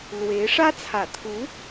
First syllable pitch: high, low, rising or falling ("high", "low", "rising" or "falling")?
rising